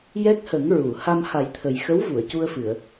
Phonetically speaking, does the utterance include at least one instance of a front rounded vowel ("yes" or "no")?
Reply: no